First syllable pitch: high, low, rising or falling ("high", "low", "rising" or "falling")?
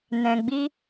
low